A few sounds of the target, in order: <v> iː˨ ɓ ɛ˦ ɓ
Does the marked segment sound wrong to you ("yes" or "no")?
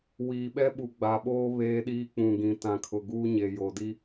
yes